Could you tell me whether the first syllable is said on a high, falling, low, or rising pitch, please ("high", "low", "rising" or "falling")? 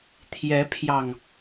rising